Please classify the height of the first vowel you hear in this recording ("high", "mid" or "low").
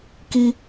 high